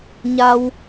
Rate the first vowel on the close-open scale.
open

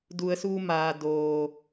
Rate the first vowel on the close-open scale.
close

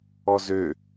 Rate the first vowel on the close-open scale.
mid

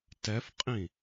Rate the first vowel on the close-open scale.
mid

